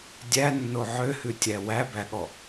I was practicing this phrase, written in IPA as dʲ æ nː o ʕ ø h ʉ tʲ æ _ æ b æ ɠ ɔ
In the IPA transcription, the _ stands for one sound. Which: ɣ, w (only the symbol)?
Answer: w